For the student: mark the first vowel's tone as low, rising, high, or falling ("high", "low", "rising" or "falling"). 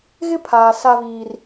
high